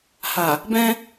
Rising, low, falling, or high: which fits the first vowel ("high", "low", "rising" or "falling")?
low